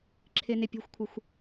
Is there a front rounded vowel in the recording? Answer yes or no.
no